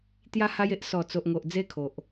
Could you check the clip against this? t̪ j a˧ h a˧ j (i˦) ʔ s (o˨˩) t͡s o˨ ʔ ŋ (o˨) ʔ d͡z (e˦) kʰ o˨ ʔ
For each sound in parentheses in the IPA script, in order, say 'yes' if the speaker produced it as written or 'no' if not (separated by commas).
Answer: no, no, yes, yes